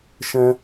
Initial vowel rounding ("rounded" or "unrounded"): unrounded